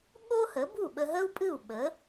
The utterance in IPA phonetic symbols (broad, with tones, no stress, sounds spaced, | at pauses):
ɠ o˥ h ə˩˥ b u˥˩ ɓ ə˧ ɦ ə˥ u̯ pʼ ɨ˥˩ u̯ ɓ ə˩˥